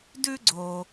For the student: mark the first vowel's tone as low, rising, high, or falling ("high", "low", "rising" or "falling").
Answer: high